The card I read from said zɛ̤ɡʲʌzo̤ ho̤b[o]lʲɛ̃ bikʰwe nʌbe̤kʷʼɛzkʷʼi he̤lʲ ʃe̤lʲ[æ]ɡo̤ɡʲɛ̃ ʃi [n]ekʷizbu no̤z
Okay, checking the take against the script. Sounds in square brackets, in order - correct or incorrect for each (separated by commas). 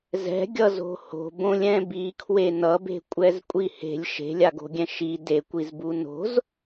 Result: incorrect, incorrect, incorrect